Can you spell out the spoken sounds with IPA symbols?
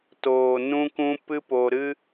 t oː˨ n ũ˦ k ũ˦ p ɨ˦ p o˧ ɾ ɨ˦

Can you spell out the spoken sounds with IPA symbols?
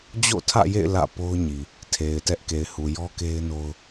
d͡ʑ o̰˦˨ tʰ ä̰˦˨ j ḛ˦˨ ɪ̯ l ä̰˦˨ p o˦ ʊ̯ ɲ i˨ | tʰ e˨ ɪ̯ t ɛ˦ ʔ k e˨ ɪ̯ h u˨ j ɔ˦ k e˦ ɪ̯ n o˦ ʊ̯

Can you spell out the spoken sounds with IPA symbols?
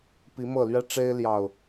p i˨˦ m ɤ˥˨ l ɥ ɛ˦ ʈ͡ʂ e˦ ɪ̯ l j ɑ˨˩ ʊ̯

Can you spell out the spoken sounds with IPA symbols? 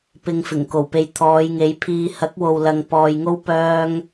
p ɪ˨ ŋ f ɪ˨˩ ŋ k o˨˩ w p e˨ j t̪ʰ ɔː˨˧ j ŋ e˨˥ j pʰ iː˧ h ɐ˨˥ k̚ w o˨ w l ɐ˨ ŋ p ɔː˨ j ŋ o˥ w p œː˥ ŋ

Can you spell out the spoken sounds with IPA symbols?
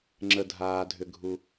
ŋ͡ǁ ə˩ dʱ aː˩ dʱ ʏ˩ ɡʱ u˩

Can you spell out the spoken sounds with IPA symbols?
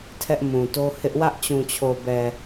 tʰ ɛ˦ ʔ m ũ˨ t o˦ h ɪ˦ ʔ w ä˦ ʔ t͡ɕ ũ˨ t͡ɕʰ o˨ b ɛ˨

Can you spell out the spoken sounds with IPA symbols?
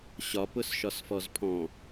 ɕ ɒ p ʊ s ʃ ɒ s f ɔ z pʰ ɔ̃

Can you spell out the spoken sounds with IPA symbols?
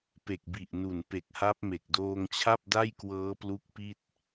p e˨˩ k̚ b i˨˩ ʔ n u˨˩ n p e˨˩ k̚ h a˦˥ p̚ m e˨˩ k̚ d oː˧ ŋ t͡ɕʰ a˥˩ p̚ d a˥˩ j k w ɤː˦˥ p l u˦˥ k̚ p i˥˩ t̚

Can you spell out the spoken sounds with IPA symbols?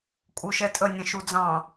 kʼ u ʃ ɛ tʼ ə nʲ ə̃ ʃ u d͡z ɑ̃

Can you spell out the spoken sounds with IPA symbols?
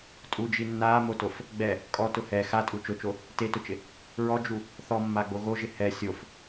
tʼ u d͡ʒ i nː aː m o t o f | ɡ͡b ɛ | kʼ ɔ t ʊ h ɛ x a tʼ u t͡ʃ ʊ t͡ʃ o | t e t ʊ t͡ʃ ɪ | ɹ ɔ d͡ʒ u | θ ɔ mː a ɡ͡b o ɣ o ʒ ɪ h ɛ sʲ o f

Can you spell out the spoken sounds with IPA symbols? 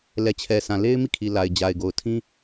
l ɛ˨ t͡ɕʰ ɛ˨ sʰ ã˨ l e˦ ɪ̯ m i˦˨ kʰ i˨ l a˨ ɪ̯ d͡ʑ a˨ ɪ̯ ɡ o˨ ʊ̯ tʰ ĩ˦

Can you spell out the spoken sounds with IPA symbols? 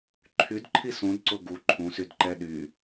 ǃʰ y d ǃʰ i s ũ d ǀ ʊ ɡ u ǃʰ ũ s y d ǃ ɛ ɗ y

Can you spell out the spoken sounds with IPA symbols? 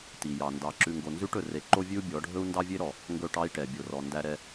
t i˨ j ɑ˨ n d ɑ˨ ǁ ʉ˨ ŋ ɡ o˨ n z ʉ˦ ʈ ɵ˨ r e˨ ǃ o˦ vʲ ʉ˦ u̯ bʲ ɔ˨˦ ɖʱ ɵ˦ u̯ n d ɑ˦ vʲ e˦ ɾ ɔ˨ | ŋ ɡ ɵ˦˨ ʈ ɑ˦ i̯ ʈ ɛ˨ bʲ o˨ r ɔ˨ n d æ˨ ɾ ɛ˨

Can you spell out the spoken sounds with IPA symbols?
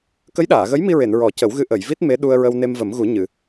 k ə˧˥ j ɗ aː˨˩˨ ɣ ə˧˥ j m i˧ ɹ e˨˩˨ n ɹ ɔ˨˩˦ c ə˨˩˦ w ɣ ɨ˧ ʔ ə˨˩˨ j v i˦˥ t̚ m e˧˥ ɗ u˧ ə̯ ɹ ə˧ w n e˧ m v ə˨˩˦ m ɣ u˨˩˦ ɲ ɨ˨˩˨

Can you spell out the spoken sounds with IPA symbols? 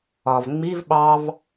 ɒ v ŋ͡m i v ɓ ɑ v

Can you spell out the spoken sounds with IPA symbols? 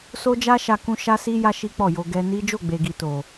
s o˦ d͡ʒ a˦ ʃ a˧ k ũ˦ ʃ a˦ s i˦ j a˦ ʃ i˦ k͡p ɔ˦˨ j o˧ ɡ ɛ˧ n i˦ d͡ʒ o˦˨ ɡ͡b e˨ ɡ i˨ t o˨

